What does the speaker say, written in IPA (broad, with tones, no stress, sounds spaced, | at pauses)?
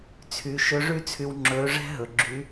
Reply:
t͡sʰ y˩˧ ʃ ɵ˧˥ ʐ y˥ t͡sʰ y˧ w ŋ͡ǁ ɵː˧˥ ʐ ɛ̤˥ ɦ ɵ˩ ɡ͡ǁ y˧˥